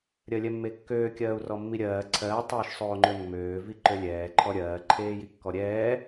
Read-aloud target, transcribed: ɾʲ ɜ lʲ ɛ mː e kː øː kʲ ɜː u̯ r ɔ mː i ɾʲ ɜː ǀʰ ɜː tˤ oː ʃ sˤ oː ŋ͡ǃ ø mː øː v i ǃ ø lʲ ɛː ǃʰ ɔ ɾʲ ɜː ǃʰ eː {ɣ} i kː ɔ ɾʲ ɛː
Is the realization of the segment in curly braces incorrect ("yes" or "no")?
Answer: yes